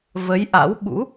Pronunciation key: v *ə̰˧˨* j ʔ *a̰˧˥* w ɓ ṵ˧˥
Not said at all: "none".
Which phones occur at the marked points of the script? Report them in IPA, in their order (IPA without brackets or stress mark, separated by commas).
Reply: ə˨˦, a̰˧˥